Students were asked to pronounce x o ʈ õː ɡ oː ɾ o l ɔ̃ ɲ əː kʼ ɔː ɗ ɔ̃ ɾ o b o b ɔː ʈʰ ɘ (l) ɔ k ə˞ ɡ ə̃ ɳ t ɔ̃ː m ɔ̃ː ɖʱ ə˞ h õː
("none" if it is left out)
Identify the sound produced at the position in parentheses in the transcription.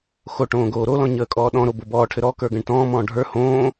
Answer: ɾ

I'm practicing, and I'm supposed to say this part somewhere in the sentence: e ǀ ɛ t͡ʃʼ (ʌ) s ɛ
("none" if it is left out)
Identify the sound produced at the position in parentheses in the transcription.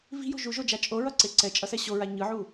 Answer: ʌ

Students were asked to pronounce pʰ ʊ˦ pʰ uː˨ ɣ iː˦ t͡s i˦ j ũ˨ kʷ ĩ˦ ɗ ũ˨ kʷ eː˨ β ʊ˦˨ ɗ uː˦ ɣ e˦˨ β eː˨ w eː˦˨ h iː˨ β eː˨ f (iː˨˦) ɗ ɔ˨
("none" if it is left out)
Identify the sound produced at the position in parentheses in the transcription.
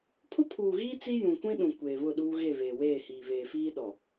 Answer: iː˦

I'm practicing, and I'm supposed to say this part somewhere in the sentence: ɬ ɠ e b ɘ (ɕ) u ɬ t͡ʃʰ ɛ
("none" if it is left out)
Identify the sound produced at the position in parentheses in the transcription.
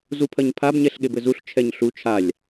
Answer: z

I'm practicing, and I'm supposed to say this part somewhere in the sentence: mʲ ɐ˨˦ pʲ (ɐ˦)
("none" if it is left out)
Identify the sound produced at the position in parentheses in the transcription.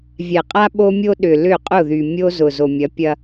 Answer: ɐ˦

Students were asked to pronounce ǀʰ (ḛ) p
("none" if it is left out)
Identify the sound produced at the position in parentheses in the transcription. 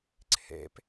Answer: ḛ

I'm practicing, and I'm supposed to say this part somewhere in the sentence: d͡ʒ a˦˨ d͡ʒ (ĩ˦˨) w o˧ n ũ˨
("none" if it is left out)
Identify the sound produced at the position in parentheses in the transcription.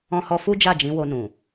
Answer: ĩ˨˦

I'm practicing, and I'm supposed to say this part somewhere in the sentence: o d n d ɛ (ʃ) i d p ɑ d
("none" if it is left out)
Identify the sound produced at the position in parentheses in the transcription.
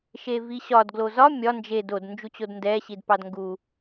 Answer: ɕ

